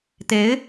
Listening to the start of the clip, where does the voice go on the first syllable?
rising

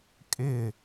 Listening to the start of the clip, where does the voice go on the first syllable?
falling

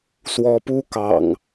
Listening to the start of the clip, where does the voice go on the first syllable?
rising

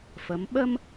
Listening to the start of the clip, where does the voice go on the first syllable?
rising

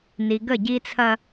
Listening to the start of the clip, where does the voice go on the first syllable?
low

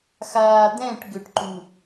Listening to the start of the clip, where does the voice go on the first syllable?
low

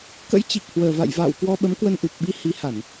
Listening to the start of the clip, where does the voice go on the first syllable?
rising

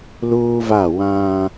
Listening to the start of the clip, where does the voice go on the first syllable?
high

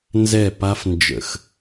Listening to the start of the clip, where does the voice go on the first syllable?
falling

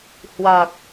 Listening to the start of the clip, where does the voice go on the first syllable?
low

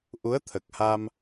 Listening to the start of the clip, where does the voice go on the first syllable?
rising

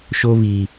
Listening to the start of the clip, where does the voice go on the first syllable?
high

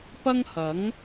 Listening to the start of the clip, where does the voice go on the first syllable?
high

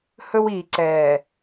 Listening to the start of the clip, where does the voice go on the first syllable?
high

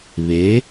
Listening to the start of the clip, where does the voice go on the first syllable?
rising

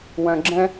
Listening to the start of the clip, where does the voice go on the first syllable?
low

